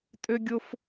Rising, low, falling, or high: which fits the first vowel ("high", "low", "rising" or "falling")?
high